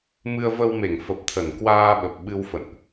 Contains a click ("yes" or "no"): no